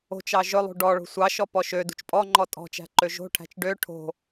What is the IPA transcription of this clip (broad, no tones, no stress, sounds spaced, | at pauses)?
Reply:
o̤ t͡ʃ ɑ ʒ ɵ lˠ ṳ ɖ ɔ ɭ o̤ sʷ ɑ ʃ ɔ p ɔ ʃ ø d ṳ t͡ʃ pʼ ɔ ŋ͡ǃ ɔ tʼ ɔ̤ t͡ʃ æ̤ ǃ ø ʒ o̤ ʈʰ æ̤ t͡ʃ ɖ ø ʈʰ o̤